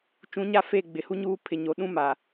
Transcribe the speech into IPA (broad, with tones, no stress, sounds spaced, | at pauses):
t͡ʃ ũ˨˦ ɲ a˦˨ f e˦˨ ɡ͡b ɪ˨ h u˦ ɲ uː˦ pʰ ɪ˨ ɲ o˨ ɗ ũ˦ m a˨